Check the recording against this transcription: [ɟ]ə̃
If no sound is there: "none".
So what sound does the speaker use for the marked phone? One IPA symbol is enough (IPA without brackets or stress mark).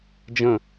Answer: d͡ʒ